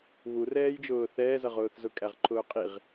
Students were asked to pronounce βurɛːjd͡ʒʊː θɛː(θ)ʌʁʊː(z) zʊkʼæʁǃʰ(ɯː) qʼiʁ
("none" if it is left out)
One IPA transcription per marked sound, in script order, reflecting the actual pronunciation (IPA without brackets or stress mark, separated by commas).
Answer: z, θ, ʊː